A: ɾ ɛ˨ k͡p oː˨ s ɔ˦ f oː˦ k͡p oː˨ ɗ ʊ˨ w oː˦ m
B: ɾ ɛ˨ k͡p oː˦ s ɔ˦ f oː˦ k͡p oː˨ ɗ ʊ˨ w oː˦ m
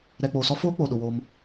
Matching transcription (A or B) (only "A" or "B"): A